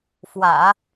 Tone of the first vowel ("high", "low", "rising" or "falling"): low